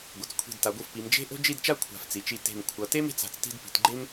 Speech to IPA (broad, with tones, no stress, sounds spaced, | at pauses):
ɡʷ ʌ˩˧ t͡s kʷʰ i̤˧˩ d t a˩˧ ɡʷ ɯ˧ f p i˩˧ m d͡ʒ e̤˥ ʔ o̤˥ d͡ʒ i˥˧ d t͡ʃ a˥ kʷʰ a̤˧˩ f t͡s i˩˧ t͡ʃ i˧ t e̤˧˩ m kʷʰ ʌ˩˧ t e˥ m e̤˧˩ t͡s a̤˧˩ t͡s t i̤˥˧ d p i̤˩˧ t ɡ͡ǃ e˥ m